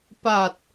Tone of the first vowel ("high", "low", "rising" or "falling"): low